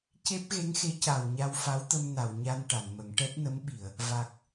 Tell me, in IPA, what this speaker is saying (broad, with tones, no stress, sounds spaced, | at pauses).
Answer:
c e˦˥ p̚ ɣ e˧˥ ŋ x e˧˥ c a˨˩ w ɲ a˧ w f a˧˥ w t̪ ə˧ m n a˨˩˨ w ɲ a˧ n ʈ a˨˩˨ n m ə˨˩˦ ŋ ʈ ɛ˦˥ t̚ n ə˧˥ m ɓ i˨˩˨ ə̯ | v a˨˩ k̚